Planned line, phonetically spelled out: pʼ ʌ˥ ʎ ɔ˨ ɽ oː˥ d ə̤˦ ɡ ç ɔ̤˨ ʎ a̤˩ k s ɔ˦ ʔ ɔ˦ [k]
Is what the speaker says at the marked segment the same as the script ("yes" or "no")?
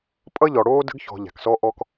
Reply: yes